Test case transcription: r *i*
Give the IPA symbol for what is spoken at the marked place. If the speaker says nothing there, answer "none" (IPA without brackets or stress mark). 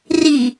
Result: i